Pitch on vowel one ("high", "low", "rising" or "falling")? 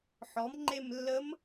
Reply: rising